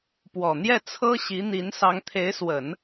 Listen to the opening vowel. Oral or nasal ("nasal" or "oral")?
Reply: oral